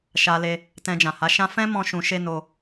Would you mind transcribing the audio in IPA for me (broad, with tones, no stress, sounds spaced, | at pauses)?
ʃ a˧ l e˧ | t ɛ̃˧ d͡ʒ ã˨ h a˨˦ ʃ ã˦ f ɛ̃˦ m ɔ̃˦ ʃ ũ˧ ʃ e˦ n o˧